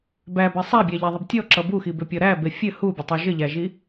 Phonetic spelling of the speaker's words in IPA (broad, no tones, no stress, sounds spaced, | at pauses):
b æ b æ sˤ æ bʲ æ ʎ æ ðˤ ɘ b tʲ ɔ ǁ ʌ b u x i b ʏ pʲ ɔ ɾ æ b e fʲ ɘ h u bʲ ɘ tˤ u ʒ ɘ ʎ æ ʒ i